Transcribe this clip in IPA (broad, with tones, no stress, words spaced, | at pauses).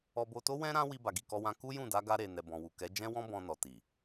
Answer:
ɔ˧bo˧to˦ wɛ̃˦ ɾã˧ wi˧ ba˨ɡi˨kɔ˧wã˧ ku˦jũ˦˨da˨˦ ɡa˧ɾe˨nɛ˨ bɔ̃˨wu˨ kɛ˨˦d͡ʒɛ̃˦ wɔ̃˦ bɔ̃˧nɔ˨ti˨